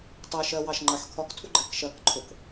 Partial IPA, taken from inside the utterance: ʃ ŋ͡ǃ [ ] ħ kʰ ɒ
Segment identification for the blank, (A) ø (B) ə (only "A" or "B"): B